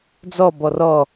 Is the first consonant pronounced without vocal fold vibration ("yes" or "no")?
no